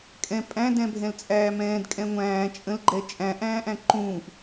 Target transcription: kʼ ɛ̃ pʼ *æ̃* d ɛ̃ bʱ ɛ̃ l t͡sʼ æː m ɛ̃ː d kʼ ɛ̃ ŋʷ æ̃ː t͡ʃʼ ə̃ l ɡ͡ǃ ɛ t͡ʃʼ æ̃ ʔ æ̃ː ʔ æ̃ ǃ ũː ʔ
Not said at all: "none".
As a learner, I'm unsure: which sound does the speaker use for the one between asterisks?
æ̃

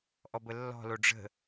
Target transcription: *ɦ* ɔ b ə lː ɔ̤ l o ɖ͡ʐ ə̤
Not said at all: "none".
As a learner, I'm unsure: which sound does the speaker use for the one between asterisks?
ʔ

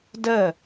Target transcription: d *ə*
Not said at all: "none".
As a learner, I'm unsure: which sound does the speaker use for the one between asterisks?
ə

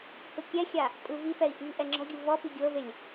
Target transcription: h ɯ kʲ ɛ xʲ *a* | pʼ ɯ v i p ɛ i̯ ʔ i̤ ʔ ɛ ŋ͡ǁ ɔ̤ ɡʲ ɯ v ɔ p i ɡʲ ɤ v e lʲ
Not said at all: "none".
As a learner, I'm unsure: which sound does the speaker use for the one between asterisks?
a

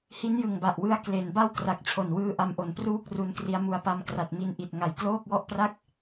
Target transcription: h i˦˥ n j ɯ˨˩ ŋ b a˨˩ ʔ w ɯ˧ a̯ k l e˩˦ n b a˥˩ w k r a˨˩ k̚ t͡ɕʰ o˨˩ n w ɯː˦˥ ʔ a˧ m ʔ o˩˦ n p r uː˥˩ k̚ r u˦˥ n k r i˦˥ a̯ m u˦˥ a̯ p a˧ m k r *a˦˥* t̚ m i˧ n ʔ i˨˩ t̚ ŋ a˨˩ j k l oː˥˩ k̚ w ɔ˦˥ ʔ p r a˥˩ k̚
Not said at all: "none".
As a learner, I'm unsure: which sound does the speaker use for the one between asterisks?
a˨˩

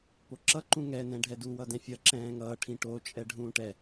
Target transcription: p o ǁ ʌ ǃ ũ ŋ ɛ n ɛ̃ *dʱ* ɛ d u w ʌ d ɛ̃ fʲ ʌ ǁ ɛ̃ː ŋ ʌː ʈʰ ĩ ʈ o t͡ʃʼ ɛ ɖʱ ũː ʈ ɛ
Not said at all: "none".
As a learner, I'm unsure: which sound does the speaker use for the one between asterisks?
ɖʱ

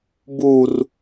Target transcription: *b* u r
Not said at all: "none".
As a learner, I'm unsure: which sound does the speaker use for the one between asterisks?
b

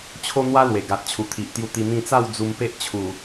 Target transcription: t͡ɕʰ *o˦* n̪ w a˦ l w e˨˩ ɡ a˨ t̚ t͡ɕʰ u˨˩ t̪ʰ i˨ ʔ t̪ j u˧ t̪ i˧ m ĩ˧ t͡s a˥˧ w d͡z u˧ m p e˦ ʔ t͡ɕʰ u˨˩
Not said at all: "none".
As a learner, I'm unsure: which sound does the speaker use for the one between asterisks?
o˦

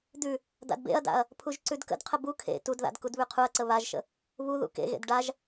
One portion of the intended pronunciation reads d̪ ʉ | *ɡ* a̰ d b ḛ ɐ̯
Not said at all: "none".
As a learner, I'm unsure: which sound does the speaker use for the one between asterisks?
d̪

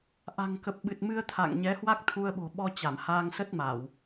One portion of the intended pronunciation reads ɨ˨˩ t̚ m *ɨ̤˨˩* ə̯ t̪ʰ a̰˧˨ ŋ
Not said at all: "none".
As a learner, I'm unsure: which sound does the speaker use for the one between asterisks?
ɨ˧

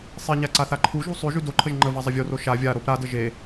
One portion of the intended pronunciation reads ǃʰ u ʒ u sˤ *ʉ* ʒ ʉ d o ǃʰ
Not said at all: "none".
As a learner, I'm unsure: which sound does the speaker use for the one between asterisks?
ʉ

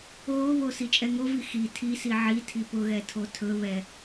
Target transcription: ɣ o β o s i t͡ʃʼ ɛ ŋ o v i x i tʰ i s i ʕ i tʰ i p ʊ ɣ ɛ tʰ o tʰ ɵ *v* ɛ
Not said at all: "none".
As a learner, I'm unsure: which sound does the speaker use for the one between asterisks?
β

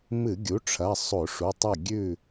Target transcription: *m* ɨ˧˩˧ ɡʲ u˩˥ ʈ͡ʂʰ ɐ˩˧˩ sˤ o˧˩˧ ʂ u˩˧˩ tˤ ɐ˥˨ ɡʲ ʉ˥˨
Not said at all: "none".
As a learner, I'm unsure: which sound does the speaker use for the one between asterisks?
m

